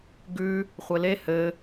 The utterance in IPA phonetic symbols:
ɡ ʉ | χʷ ɘ l e h ɘ

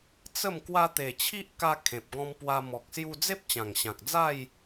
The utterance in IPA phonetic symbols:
t͡s ə˥˧ m k w a˧ t̪ e˨˩ t͡ɕʰ i˦ ʔ k a˧ kʰ ẽ˨ p̚ ɡ ɔ̃˧ m p w a˧ m ɔ˨ k̚ s j u˧ d͡z e˦ p̚ t͡ɕ ã˨˩ ŋ ɕ ã˨ k̚ d͡z a˥˧ j

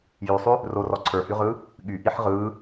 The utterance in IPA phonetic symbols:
j y sˤ y | r o r ɔ ǀʰ ə˞ h y ʁ ɯː | ɠ y ʔ i ħ ʁ ɯː

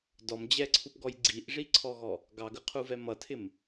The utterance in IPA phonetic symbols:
d ɔ m d͡ʑ ɛ ǀʰ u p ɡ ɔ j ɡ͡ǀ i ʔ ʐ i ǀʰ ɔ ɣ ɔ | ɡ ɑ ɡ ə qʰ u v ɛ m ʌ tʰ ɪ m

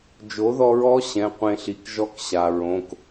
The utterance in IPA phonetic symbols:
d͡ʒ o˩˥ ð ɔ˧ ɹ ɔ˧˥ ɕ ɛ̃˩˧˩ qʷ ẽ˧ ɬ i˩˧˩ k ʒ ɔ˧˥ k ɕ a˩ ɹ õ˩˧˩ k

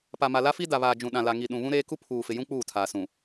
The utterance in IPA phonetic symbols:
p a˨ m a˨ l a˦ f i˦ d a˨ β aː˨ d͡ʒ ũ˨ ɗ ã˨ l a˨ ŋ i˨ ɗ ũ˨ β ũ˦ ɾ eː˦ k u˦ pʰ uː˨ f ɪ˨ j ũ˦ k͡p uː˦˨ tʰ aː˨ s ũ˨

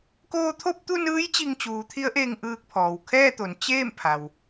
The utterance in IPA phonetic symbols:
k oː˧ t̪ʰ o˥˨ p̚ t̪ u˥˨ n ɯː˧˥ j t͡ɕ i˧ ŋ t͡ɕ uː˩˧ t̪ʰ i˧˥ ə̯ ʔ eː˧ ŋ ʔ ɯː˧ k̚ pʰ ɔː˩ w kʰ ɛː˥˨ t̪ o˩˧ n t͡ɕ eː˥˨ m pʰ a˩ w

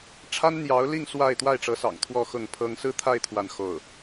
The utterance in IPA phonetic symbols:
ʈ͡ʂʰ a˥ n n̪ j ɑ˧˥ ʊ̯ l i˥˧ ŋ s w a˥˧ ɪ̯ t̪ w a˥˩ ɪ̯ ʈ͡ʂ ɤ˧˥ s ɑ̰˨˩ ŋ t̪ʰ w ɔ˥˧ x ʊ˥˩ ŋ pʰ ɤ˥ ŋ s ɹ̩˥ t̪ʰ a˥˧ ɪ̯ t̪ʰ w a˥˧ n x o˥˩ ʊ̯

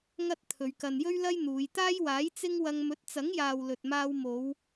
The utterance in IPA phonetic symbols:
ŋ ɐ˥ t̚ t̪ʰ ɵ˨˧ ɥ k ɐ˨ n j ɵ˥ ɥ l ɐ˥ j n̪ uː˨˧ j t̪ aː˥ j w aː˨˥ j t͡s ɪ˥ ŋ w ɐ˧ ŋ m ɵ˨˥ t̚ t͡s ɐ˨˥ ŋ j aː˨ w l ɵ˨ t̚ m aː˧ w m o˨˧ w

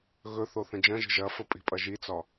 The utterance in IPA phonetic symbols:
ɣ ɵ θ o θ ə̃ d͡ʒ ɐ̃ ʒ ə̤ ʒ ɐ f ə pʼ i̤ pʼ ɐ ʒ i t͡s ɒ

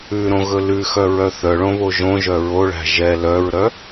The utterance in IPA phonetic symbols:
ʉ ɾ õ ɣ ɵ l ʉ x œ ɹ œ θ œ ɭ õ β o ʒ õ ʒ œ ɹ o ɭ æ̤ ʒ ɛ l œ ɹ ɾ œ

